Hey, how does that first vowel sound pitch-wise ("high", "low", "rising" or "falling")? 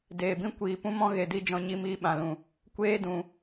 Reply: low